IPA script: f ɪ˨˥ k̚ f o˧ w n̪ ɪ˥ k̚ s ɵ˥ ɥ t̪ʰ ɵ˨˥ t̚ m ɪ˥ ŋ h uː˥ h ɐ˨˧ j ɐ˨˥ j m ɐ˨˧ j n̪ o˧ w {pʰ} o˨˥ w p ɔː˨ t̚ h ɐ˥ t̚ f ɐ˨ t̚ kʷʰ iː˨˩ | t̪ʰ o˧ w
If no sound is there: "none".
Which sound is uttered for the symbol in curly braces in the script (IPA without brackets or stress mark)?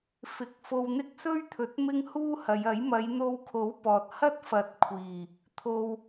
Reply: kʰ